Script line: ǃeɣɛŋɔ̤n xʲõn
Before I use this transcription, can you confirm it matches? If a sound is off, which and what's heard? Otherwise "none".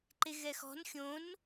ŋ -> x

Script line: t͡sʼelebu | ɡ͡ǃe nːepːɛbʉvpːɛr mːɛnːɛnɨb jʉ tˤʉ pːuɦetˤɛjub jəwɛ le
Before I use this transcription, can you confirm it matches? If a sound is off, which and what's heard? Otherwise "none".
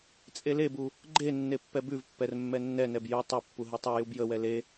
ɨ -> ɛ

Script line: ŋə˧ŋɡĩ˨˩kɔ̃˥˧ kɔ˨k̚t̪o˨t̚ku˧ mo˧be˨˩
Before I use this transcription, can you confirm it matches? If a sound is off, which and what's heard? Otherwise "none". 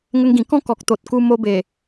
none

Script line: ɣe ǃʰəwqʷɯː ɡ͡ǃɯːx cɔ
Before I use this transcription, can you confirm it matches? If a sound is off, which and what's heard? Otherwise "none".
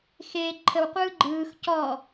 ɣ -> x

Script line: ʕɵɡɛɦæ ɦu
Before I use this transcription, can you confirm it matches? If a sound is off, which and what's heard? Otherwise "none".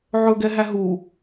none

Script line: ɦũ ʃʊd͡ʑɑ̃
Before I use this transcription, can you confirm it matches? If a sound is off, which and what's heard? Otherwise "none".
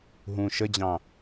ʊ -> ə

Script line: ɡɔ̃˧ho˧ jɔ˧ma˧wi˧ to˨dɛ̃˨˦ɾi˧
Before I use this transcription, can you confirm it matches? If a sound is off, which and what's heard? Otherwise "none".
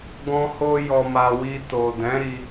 none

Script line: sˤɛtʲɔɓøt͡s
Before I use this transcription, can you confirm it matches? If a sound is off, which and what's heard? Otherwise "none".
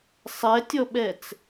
ø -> ɛ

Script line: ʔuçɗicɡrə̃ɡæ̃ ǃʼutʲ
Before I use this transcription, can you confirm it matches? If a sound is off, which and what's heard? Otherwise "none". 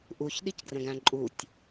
none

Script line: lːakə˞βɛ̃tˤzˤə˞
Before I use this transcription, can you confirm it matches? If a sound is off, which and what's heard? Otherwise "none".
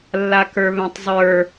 none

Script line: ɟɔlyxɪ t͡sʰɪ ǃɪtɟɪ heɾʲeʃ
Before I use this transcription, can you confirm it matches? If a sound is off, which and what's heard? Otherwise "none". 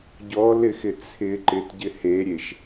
y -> ɪ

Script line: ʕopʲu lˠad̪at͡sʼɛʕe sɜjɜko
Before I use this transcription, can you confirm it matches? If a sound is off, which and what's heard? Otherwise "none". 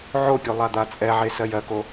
none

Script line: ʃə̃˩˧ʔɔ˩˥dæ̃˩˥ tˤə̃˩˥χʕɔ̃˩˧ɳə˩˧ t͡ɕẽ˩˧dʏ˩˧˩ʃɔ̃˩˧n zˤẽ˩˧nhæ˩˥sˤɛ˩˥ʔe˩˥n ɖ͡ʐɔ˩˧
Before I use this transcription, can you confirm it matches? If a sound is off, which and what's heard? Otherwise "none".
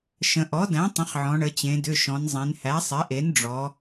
none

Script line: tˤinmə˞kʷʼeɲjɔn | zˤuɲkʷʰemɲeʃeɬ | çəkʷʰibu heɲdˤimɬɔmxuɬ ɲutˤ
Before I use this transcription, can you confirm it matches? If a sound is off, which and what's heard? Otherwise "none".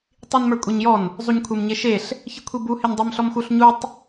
none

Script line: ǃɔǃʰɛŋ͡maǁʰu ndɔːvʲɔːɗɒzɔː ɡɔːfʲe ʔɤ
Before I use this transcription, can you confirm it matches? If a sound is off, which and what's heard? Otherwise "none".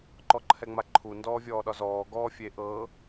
ǁʰ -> ǃʰ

